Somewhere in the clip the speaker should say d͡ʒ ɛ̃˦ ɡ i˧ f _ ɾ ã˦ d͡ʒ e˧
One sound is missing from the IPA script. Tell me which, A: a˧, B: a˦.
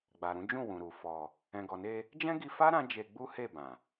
B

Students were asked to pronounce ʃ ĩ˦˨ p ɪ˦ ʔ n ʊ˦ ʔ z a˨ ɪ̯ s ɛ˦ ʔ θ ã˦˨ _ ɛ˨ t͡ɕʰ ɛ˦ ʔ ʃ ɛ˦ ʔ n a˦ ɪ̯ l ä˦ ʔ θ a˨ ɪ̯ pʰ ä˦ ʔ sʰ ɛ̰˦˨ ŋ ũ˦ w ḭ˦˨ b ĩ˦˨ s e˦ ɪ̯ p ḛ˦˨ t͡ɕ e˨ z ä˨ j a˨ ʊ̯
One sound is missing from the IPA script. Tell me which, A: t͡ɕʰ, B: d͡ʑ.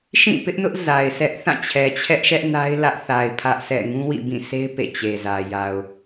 A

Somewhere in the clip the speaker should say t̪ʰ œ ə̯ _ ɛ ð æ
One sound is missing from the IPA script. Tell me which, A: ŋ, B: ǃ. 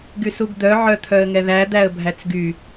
A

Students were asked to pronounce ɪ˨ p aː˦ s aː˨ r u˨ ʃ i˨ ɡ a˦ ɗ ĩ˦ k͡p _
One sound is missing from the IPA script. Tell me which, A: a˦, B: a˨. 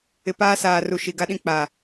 B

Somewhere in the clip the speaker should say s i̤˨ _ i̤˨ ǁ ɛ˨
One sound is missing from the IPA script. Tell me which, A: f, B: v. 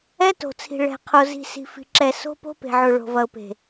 A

